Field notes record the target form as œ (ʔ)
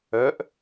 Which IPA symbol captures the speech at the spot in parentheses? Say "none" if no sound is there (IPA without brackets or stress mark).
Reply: ʔ